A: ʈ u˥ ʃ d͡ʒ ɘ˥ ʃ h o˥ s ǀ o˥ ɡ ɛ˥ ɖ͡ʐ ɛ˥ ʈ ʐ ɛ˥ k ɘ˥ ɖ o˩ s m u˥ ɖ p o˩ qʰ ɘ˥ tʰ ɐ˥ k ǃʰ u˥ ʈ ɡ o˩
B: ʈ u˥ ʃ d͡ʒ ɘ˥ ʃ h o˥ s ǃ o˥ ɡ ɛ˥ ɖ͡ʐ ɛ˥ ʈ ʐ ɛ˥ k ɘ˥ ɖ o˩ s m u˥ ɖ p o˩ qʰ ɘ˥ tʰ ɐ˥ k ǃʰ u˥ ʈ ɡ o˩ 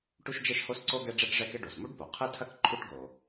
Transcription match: A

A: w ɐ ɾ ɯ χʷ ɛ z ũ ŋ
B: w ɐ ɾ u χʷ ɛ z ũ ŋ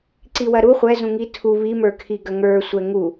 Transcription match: B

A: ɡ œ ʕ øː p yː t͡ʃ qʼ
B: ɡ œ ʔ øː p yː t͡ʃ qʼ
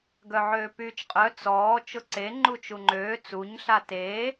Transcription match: A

